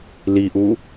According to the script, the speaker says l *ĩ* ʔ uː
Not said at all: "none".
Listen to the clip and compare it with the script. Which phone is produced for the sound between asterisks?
i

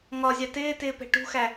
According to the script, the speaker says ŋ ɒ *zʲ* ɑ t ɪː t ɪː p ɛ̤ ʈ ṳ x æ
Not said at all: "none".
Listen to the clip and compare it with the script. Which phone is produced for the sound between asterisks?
zʲ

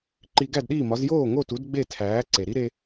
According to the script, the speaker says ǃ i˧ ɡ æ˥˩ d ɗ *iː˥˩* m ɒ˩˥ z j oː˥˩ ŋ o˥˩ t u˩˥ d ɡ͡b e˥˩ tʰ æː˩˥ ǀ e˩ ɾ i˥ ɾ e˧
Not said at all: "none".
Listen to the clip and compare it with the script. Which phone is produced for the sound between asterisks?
iː˥˩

